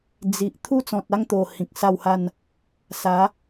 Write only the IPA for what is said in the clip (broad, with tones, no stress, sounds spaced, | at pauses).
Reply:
d͡z i˨ ʔ t̪ʰ u˥˧ t͡s ɔ̃˨ t̚ a˥˧ ŋ t̪ o˨˩ h ĩ˨ k̚ s a˥˧ w h a˥˧ n | s a˨˦